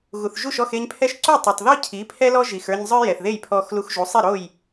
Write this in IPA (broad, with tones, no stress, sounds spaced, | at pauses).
ɣ u˩ θ ʒ u˥˩ ʃ ɔ˥˩ x e˧ ɲ pʰ ɛ˥ ʃ ǀ u˥˩ tˤ o˩ tˤ ð o˥ cʰ i˩˥ pʰ ɛ˥ l ɔ˥ ʒ i˩ x ə˞˧ ɲ zˤ ə˞˥ j ɛ˩ θ ð e˥˩ j pʰ ɔː˧ x l u˧ x ʒ u˩˥ sˤ i˥˩ ɾ o˥˩ j